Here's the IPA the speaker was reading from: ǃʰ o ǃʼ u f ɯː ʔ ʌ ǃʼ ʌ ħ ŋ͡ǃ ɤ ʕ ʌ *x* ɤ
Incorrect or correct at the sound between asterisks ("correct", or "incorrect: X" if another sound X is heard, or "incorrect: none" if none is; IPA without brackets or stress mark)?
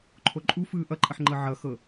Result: correct